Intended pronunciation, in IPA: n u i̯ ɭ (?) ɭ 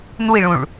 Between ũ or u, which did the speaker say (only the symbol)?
ũ